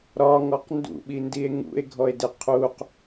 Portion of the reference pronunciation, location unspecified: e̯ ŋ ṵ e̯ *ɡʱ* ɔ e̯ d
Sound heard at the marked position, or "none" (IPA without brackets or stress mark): ɡʱ